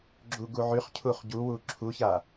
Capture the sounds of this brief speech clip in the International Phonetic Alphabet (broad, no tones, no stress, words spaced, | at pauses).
ɡ͡ǁuɡuʕyχcʰuχ ɟuwu ǁʰuça